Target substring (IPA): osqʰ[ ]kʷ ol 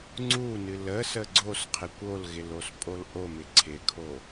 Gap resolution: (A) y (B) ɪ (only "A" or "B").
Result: B